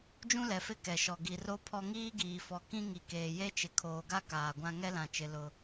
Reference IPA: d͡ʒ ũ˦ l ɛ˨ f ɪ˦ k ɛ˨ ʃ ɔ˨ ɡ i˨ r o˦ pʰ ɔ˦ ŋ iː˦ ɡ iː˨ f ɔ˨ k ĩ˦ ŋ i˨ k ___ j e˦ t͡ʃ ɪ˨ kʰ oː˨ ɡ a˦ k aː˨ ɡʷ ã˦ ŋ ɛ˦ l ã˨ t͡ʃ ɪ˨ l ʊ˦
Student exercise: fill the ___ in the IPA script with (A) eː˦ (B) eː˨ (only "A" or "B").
B